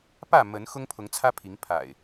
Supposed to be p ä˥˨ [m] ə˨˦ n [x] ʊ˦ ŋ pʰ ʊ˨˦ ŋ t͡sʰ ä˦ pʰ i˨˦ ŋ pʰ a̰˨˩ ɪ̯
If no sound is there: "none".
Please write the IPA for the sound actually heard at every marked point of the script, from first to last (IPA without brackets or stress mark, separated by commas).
m, x